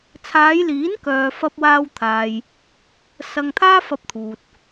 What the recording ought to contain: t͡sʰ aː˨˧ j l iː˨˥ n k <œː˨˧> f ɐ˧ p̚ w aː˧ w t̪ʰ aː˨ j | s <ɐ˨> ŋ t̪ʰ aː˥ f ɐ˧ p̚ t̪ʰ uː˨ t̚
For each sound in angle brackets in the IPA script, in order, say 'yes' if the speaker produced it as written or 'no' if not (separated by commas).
no, no